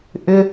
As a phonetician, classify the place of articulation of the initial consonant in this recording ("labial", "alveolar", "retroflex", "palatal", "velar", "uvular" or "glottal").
glottal